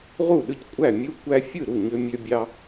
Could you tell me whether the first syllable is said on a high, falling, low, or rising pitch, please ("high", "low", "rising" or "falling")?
falling